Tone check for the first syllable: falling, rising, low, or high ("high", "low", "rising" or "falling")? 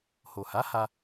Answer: low